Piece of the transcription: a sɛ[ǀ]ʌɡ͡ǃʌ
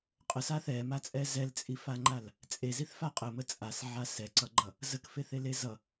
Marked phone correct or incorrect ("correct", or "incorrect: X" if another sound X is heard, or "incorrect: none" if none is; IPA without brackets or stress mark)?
correct